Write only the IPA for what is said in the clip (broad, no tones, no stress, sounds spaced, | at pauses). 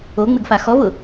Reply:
o ŋ͡m ɪ ɡ f a x ɔ v ʊ